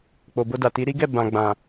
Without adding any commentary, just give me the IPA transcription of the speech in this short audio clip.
k͡p o˨ b o˧ d a˨ t i˨˦ ɾ i˦ ɡ ɛ˦˨ b ã˨ ɡ͡b ã˨

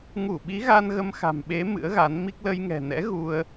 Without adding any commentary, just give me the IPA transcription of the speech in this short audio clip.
ŋ u˧˩ ɓ i˨˦ ɣ a˧ n ɣ ə˧ m x a̤˨˩ m ɓ e˨˦ m ɨ̰˧˥ ə̯ ɣ a˨˦ n m i˦˥ k̚ l ə˧ j ŋ ɛ̤˨˩ n ɛ̰˧˥ ɣ u˧ ə̯

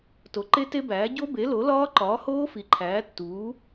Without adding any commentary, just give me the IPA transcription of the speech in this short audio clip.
t o˩˥ ǃ e˦˥ t e˦˥ b æː˩˥ ɟ o˦˥ b e˩˥ l o˩˥ l ɒː˦˥ ǃ ɒː˩˥ h oː˦˥ f i˩˥ ǃʰ æː˩˥ tː uː˩˥

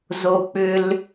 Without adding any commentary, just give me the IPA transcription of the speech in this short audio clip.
z o˨ k͡p ʏ˨ l

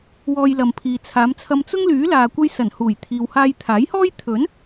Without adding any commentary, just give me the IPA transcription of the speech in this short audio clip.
w ɔː˧ j l ɐ˨ m pʰ iː˨ t͡sʰ aː˨˧ m t͡sʰ ɐ˧ m t͡s ʊ˥ ŋ l yː˨˥ l aː˨ kʷ ɐ˧ j s ɐ˨˩ n h uː˨˩ j t̪ʰ iː˨ w h aː˧ j t̪ʰ aː˨˥ j h ɔː˥ j t̪ʰ ɵ˨˥ n

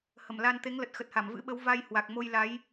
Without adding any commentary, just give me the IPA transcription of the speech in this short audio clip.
h ə˧˩ m l a˧ n t̪ e˨˦ ŋ l ə˨˩ t̚ x ə˨˩ t̚ h a˧˩ m v ɨ̰˧˥ ɓ ə˨˦ w v a˧ j h w a˨˩ k̚ m o˧ j l a˨˦ j

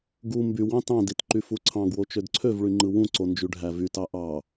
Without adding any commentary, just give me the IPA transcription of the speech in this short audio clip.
ɡ u m b y w ɑ̃ t ɑ̃ d i t ǃ y f u ǀʰ ɑ̃ ɡ w o t͡ʃ ø d ǀʰ ø v ɭ y ŋ͡ǃ ɯ w ũ ǀ o n d͡ʒ y ɖʱ æ v y t ɑ ʔ ɑ

